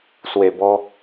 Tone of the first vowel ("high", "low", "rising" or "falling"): low